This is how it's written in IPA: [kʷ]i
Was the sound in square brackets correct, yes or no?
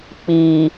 no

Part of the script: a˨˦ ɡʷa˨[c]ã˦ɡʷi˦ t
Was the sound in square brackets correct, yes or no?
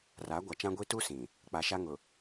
no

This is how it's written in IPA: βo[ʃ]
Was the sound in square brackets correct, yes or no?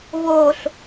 no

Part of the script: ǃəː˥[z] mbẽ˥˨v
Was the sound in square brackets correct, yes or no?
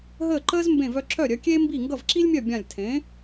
yes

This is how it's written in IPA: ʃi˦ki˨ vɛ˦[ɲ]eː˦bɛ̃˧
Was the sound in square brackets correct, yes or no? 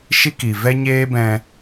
yes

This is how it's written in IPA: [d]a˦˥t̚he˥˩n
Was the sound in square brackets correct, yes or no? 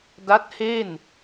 yes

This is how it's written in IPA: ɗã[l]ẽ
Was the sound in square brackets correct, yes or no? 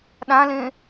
yes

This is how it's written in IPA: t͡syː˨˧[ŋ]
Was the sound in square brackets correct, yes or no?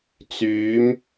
no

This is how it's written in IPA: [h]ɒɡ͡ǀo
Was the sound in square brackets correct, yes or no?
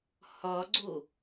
yes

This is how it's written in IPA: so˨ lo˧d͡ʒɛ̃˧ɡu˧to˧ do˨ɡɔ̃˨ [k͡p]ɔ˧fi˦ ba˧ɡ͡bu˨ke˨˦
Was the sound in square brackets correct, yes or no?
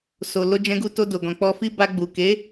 yes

